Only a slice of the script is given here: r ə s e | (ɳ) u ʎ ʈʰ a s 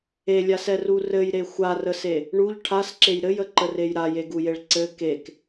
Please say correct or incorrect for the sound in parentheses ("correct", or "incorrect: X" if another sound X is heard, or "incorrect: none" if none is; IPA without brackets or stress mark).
correct